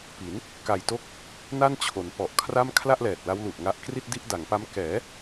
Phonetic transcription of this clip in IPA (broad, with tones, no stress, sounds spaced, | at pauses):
p i˩˦ n | k a˨˩ j t o˦˥ k̚ | n a˥˩ n t͡ɕʰ o˩˦ n p ɔ˨˩ ʔ kʰ r a˥˩ m kʰ l a˥˩ ʔ l ɛː˨˩ t̚ l a˦˥ w l u˨˩ ʔ ŋ a˦˥ ʔ k r i˥˩ t̚ d i˥˩ ʔ d a˩˦ ŋ p a˦˥ m k ɛː˩˦